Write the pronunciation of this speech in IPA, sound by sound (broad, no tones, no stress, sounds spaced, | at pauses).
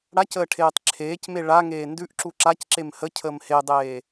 ɽ a c əː ʈʰ eː tˤ ǁʰ eː c m e ɭ a ŋ eː n d ʉ ʔ ǁ u ǁ a c ǁ e m h ə cʰ əː m h e dˤ eː